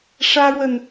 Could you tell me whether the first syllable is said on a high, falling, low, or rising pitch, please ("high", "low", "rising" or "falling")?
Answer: high